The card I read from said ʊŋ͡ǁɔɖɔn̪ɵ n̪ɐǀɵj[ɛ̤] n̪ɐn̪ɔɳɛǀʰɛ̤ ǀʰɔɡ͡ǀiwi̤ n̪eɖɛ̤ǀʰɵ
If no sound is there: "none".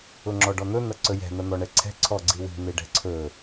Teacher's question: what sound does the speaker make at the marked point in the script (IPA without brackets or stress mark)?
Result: ɛ̤